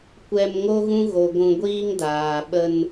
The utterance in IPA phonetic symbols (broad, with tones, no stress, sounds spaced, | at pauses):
kʷ ɛ˧ m ŋ o˦ ɣ ũ˦ ɣ o˨ ɡʷ ũ˧ ɡʷ iː˦ ŋ d aː˨ ɓ ə˧ n